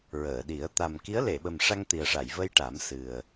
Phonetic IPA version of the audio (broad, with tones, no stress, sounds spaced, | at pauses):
ɹ əː˨˩˨ ɗ i˨˩˦ ə̯ t̪ a˨˩ m k i˧˥ ə̯ l e˨˩˨ ɓ ə˨˩ m ʂ a˧ ŋ t̪ i˨˩ ə̯ ʂ a˨˩˨ j v ə˧ j ʈ a˨˩˦ m s ɨ˨˩ ə̯